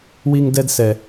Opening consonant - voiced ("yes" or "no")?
yes